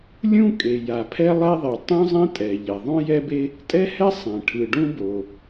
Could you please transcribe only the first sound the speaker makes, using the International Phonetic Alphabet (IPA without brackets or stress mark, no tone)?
lʲ